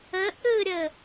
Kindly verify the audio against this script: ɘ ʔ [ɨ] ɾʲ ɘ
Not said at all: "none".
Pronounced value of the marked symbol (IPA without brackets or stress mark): ɨ